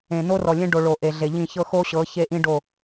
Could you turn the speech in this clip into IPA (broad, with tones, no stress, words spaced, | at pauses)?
ẽ˨no˦ rɔ˨lʲẽ˦ ɖo˨ ɭo˨ʔe˨ɮe˨ʎĩ˦˨ çɤ˦xo˦ ɕɤ˨˦çe˦ʔĩ˦ɖo˦˨